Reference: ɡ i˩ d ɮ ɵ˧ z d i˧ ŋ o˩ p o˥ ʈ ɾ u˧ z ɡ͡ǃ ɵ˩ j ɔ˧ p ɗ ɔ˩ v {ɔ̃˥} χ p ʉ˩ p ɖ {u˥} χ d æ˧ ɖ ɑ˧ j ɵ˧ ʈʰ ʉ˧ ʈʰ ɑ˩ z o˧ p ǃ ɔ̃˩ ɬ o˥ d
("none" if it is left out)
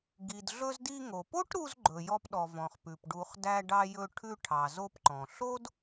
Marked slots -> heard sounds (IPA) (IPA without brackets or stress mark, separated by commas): ɔ̃˩, u˩